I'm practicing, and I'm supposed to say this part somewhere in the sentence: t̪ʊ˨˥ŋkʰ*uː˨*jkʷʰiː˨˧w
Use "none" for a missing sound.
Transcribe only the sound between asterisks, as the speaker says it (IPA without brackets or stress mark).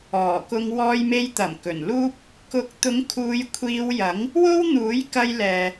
uː˨˧